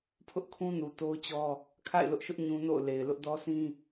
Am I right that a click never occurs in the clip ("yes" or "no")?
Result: yes